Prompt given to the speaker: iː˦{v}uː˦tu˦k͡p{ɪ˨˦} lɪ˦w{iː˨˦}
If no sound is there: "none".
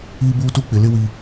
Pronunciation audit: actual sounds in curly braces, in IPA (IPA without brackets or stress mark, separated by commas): b, ɪ˨, iː˨